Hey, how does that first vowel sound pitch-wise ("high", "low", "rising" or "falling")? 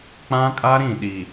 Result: high